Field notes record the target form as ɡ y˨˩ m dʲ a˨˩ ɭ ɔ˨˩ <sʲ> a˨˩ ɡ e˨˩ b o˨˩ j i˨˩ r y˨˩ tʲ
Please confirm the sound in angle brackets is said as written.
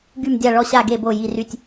no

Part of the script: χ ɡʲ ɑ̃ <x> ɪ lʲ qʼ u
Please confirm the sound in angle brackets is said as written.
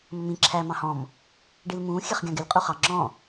no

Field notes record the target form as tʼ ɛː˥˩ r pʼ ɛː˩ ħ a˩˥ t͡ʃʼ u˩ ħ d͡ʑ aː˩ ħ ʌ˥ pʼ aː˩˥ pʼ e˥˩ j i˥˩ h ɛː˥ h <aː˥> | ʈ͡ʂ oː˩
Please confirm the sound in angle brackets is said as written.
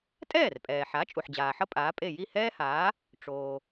no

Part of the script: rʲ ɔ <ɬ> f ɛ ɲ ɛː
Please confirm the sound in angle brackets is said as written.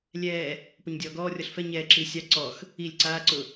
yes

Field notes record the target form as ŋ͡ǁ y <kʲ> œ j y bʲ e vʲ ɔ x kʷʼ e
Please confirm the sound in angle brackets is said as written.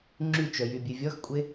no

